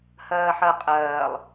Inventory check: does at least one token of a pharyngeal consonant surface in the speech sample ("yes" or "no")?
yes